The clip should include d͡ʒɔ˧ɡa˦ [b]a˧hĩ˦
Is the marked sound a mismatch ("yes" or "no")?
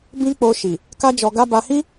no